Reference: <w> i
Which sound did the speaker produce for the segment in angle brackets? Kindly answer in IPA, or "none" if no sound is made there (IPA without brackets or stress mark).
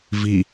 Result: v